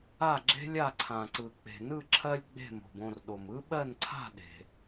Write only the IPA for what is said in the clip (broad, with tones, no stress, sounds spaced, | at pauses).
a˥˨ ɡ͡ǁ e̤˥ lʲ a˥˨ ǀʰ ã˩ ǀ ɯ˩ k͡p e̤˩ n ɯ˥˨ ǁʰ ɜ˥ lʲ ɡ͡b e̤˥˨ m o̤˩ b õ˥˨ r ɗ o˩ m ɯ˥ ɓ ɜ˥˨ n ǀʰ a̤˥˨ ɗ e̤˩